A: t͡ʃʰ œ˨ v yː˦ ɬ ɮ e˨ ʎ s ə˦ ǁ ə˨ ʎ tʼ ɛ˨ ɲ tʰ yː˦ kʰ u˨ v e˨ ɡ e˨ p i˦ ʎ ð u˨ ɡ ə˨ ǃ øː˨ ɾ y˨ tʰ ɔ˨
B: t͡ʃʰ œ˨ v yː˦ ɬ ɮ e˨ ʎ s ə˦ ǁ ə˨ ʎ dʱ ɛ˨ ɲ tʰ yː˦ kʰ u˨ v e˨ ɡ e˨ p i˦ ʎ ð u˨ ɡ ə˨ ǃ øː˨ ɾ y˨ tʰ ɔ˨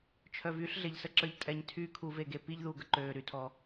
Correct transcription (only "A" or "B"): A